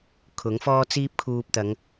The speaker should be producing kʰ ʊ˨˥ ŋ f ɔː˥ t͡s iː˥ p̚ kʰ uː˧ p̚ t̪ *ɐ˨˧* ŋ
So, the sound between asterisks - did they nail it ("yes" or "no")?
yes